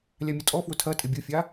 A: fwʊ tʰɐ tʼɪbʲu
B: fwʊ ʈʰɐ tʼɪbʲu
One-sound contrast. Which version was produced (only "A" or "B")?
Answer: A